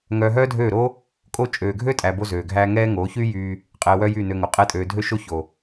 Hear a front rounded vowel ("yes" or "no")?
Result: yes